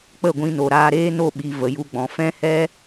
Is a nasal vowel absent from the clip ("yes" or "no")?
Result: no